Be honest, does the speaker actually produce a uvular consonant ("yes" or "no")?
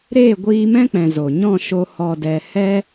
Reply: no